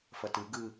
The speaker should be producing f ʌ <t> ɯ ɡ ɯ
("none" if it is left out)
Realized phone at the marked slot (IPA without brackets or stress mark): t